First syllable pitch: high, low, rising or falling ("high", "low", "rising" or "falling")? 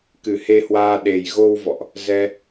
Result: low